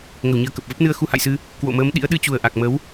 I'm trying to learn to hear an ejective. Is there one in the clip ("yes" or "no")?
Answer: no